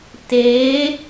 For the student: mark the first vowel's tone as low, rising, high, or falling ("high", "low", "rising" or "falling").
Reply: rising